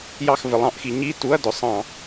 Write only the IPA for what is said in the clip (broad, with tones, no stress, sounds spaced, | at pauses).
j ɑ˦˨ x v ɪ˩˧ lˠ ɑ̃˧˩˧ ʔ x i˩˧ ɲ i˧˥˧ t u˧˥˧ ɐ̯ d ʊ˩˧ sˤ ɑ̃˧˩˧